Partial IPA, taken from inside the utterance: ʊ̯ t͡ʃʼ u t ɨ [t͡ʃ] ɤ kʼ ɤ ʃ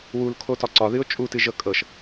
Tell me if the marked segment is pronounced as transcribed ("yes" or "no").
no